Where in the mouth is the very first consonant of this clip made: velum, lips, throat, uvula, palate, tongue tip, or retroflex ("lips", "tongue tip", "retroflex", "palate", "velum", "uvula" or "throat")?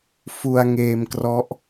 lips